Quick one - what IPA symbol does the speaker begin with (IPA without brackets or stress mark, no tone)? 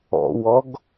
ɔ̰